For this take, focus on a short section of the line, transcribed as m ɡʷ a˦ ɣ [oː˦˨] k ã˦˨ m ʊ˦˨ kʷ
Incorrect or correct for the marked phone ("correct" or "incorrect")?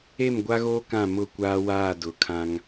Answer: incorrect